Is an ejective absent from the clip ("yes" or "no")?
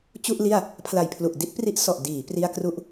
yes